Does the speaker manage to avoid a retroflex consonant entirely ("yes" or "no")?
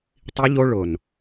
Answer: no